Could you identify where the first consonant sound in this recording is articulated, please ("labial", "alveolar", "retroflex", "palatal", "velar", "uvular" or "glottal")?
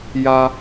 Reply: palatal